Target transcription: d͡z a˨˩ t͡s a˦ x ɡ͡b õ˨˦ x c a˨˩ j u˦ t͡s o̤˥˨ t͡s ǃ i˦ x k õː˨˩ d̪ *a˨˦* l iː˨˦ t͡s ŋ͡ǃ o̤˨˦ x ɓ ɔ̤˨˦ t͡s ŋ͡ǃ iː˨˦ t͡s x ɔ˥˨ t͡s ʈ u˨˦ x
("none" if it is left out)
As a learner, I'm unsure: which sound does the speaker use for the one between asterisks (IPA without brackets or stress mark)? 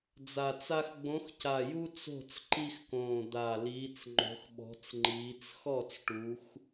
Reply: a˨˩